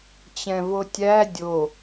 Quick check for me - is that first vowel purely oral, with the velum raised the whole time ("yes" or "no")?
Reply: no